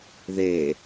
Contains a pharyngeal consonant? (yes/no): no